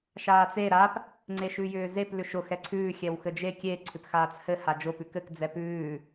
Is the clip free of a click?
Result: no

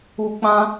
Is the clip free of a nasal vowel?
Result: no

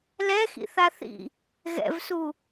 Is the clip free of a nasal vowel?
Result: yes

